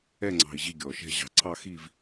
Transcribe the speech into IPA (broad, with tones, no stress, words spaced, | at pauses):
ɛ˥˧ŋ͡ǀɑ̤˧i̯ ʑi˥˧ɡʲɔ˧˩ʃɛ̤˥˧ ʑɑ̤˧ǀʰɑ˥˧xi˥˧v